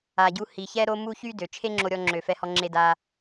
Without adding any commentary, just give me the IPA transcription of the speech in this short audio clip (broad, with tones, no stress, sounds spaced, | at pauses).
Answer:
a˨ ɟ u˦ h i˨ ç ɛ˥ ɾ o˦ m u˦ ç y˥ d ø˩ t͡ʃʰ e˦ ŋ͡ǁ o˨ ɾʲ ɔ˨ ŋ͡ǁ ø˩ f ɛ˨ h ɔ˨ ŋ͡ǁ e˨ d a˩